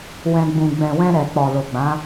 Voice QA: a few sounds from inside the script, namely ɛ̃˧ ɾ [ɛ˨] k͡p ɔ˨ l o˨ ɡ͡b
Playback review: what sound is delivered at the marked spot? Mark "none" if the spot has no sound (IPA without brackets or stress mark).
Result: ɛ˨